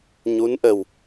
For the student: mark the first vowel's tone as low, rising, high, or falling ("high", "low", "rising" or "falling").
rising